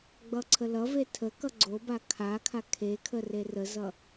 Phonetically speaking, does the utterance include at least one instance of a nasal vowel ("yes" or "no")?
no